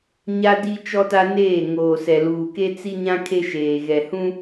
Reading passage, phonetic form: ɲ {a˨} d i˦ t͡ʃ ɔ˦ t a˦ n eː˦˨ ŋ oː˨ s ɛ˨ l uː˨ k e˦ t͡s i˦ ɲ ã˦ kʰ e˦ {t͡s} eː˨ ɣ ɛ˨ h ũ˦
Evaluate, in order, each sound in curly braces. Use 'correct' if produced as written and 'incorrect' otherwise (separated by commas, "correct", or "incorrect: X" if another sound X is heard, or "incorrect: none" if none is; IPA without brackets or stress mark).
incorrect: a˦, incorrect: ʃ